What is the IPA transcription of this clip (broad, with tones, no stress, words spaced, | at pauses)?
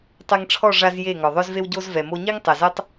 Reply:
tˤɛ˧ŋʈ͡ʂʰɔ˦˨ ʐa˦zje˦˨ ŋɔ˨ðˤœ˦zve˦wɟo˦z vɛ˨mo˧ɲi˦ŋ tˤɛ˨zɛ˦tˤ